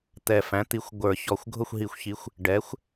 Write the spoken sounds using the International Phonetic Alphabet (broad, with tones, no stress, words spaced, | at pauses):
t̪ɛ˨˩fæ̃˩˥ t̪i˩˥xʷ ɡʷə˞˨˩˦çɔ˨˩xʷ ɡʱʊ˥˨xʷɦi˨˩˦xʷçi˩˥xʷ | ɖɛ˩˥xʷ